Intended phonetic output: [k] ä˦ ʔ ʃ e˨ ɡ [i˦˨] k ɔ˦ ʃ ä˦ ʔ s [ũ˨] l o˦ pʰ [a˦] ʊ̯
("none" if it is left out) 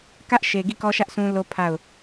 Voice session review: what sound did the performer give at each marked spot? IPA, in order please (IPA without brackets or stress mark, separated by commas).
k, i˦˨, ũ˦, a˦˨